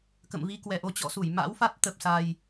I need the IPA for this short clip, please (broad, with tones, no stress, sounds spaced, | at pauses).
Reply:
k ə̰˧˨ m v i˧ k w ɛ˨˩ ʔ o˧ t͡ɕ ɔ̰˧˨ s u˧˩ j m a̰˧˥ w f a˦˥ t̚ t̪ ə˨˩ p̚ s a˨˩ j